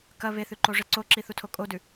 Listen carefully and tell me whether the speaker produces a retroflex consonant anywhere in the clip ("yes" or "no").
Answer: yes